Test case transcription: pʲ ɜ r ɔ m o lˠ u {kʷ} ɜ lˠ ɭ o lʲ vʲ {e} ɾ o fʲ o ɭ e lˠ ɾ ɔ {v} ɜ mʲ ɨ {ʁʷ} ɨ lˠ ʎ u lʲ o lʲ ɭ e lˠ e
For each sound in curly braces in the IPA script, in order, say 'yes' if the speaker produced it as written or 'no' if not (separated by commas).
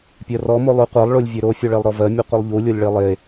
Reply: no, no, yes, no